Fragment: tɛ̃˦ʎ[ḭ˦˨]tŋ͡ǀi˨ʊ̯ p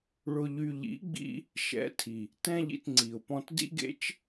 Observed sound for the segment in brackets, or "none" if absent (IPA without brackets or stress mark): ḭ˧